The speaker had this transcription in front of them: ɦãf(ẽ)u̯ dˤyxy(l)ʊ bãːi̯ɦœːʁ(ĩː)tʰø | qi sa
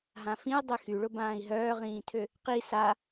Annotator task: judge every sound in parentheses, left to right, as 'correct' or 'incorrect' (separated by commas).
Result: incorrect, incorrect, correct